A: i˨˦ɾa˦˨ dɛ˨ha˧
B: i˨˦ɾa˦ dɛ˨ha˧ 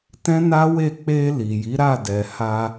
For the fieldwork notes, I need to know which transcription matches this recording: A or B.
A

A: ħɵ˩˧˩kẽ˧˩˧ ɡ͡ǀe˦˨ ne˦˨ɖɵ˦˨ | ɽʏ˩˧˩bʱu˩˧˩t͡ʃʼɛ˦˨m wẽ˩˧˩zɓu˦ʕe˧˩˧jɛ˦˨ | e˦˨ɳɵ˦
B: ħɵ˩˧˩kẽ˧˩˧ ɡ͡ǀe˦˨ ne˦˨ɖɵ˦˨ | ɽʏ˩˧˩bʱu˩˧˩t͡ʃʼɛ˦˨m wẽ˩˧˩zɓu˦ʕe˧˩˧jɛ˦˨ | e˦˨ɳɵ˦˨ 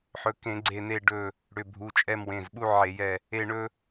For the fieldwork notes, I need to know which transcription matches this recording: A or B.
A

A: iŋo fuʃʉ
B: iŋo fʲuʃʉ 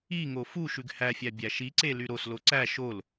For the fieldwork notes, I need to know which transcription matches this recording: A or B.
A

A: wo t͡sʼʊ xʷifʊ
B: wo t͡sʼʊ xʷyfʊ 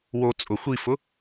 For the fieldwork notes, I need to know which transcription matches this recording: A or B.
A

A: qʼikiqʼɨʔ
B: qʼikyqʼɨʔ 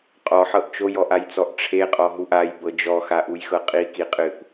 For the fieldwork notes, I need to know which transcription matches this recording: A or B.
A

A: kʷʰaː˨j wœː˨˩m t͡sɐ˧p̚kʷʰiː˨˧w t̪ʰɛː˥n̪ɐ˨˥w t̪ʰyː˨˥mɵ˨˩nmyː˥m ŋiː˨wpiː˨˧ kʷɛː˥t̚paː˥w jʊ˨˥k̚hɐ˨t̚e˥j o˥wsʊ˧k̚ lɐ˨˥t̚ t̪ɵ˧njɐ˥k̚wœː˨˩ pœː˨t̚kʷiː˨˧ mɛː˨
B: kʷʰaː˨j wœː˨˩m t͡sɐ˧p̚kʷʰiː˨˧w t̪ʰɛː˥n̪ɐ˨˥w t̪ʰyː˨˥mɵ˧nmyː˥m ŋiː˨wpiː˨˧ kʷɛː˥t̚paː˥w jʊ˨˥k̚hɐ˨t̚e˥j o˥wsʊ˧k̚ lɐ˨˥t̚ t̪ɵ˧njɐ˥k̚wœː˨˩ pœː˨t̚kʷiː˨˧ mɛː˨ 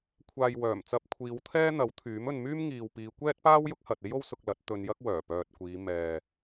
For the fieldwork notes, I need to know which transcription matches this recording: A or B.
B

